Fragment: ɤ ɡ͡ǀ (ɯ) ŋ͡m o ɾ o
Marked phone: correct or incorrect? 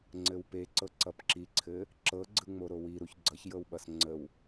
correct